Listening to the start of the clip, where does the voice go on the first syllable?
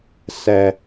low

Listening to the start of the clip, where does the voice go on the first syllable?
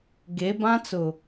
rising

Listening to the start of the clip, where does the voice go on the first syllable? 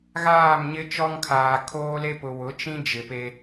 falling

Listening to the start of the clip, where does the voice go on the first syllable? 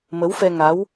rising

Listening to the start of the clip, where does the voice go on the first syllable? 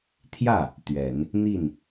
falling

